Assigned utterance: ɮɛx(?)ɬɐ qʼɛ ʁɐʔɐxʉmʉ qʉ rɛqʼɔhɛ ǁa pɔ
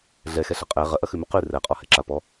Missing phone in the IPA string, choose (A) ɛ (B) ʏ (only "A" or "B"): A